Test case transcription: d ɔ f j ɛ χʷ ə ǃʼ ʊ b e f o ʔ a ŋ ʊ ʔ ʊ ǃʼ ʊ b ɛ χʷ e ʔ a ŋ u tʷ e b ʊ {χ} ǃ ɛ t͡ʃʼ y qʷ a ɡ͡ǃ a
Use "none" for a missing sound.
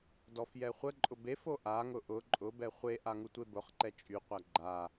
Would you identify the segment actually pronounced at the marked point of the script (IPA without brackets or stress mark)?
χ